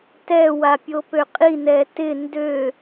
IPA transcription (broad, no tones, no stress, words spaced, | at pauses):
tɛ wapʲopøqʼi nɛtɪ ndø